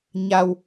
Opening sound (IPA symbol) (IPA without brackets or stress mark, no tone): ɲ